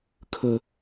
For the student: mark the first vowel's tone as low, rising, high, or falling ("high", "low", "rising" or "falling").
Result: low